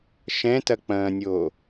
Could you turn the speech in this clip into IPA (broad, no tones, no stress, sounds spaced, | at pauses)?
ʃ ɛ̃ t ɐ k͡p ɐ̃ː nʲ oː